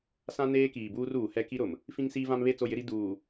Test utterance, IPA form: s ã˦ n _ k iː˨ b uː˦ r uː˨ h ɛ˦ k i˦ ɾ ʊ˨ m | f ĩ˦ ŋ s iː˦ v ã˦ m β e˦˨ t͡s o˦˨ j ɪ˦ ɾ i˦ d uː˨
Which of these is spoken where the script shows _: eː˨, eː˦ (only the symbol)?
eː˦